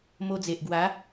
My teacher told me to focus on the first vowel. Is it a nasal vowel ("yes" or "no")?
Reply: no